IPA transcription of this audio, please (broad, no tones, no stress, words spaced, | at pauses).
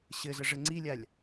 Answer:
ɕɘzəʐɘ ŋ͡ǀilʲalʲ